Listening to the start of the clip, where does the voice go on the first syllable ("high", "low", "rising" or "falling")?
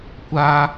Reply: high